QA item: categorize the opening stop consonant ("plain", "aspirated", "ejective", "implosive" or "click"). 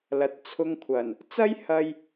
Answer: plain